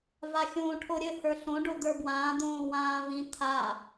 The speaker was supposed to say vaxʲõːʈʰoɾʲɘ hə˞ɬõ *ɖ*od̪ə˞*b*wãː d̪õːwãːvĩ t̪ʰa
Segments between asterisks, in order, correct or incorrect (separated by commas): correct, correct